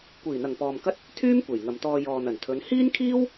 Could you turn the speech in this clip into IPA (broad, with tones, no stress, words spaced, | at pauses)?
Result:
kʷiː˨˩n̪ɐ˨˩ŋpɔː˨mkɐ˥t̚ | t̪ʰyː˥m kʷe˨˩jŋɐ˨mt̪ɔː˧ jɔː˨n̪ɐ˨˩nt̪ʰɵ˨˧n hiː˥nkʰiː˥w